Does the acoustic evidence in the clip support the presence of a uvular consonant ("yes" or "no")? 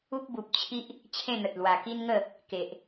no